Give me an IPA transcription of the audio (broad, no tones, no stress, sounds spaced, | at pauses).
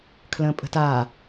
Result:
kʰ l ə̃ː pʼ ə̤ t a